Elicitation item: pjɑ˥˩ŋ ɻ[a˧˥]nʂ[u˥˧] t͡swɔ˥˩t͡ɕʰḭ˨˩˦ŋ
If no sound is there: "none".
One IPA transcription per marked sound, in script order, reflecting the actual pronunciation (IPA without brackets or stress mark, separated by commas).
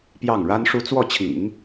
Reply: a˥, u˥